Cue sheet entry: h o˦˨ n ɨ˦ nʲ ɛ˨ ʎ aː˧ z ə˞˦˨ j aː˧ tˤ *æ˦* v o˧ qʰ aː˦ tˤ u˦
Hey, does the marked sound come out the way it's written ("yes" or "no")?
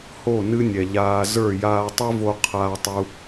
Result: no